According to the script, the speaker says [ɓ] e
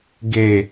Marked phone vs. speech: incorrect: ɡ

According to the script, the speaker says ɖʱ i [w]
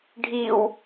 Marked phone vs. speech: correct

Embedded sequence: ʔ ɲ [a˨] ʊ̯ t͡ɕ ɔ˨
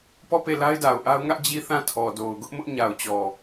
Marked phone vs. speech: correct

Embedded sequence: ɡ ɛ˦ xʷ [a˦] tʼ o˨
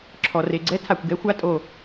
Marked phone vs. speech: correct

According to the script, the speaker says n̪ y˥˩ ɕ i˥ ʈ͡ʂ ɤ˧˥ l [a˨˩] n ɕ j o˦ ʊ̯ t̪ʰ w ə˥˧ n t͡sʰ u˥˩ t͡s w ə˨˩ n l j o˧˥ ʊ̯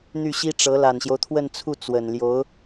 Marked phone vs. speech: correct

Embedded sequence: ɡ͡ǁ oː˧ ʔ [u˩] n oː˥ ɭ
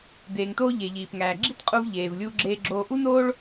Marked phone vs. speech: incorrect: u˥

